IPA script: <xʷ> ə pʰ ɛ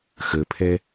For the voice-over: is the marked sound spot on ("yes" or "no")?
no